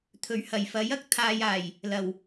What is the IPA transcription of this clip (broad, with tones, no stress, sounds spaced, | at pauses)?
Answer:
t̪ʰ ɵ˨˩ ɥ h ɐ˨˩ j f ɐ˨˥ j ɐ˧ k̚ t̪ʰ aː˨ j aː˨˩ j | l ɐ˨˩ w